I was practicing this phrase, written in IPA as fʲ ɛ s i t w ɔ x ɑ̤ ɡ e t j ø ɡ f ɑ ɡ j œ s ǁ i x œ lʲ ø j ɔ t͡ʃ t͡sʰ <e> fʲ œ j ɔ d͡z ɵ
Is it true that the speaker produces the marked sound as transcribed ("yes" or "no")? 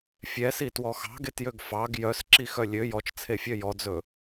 yes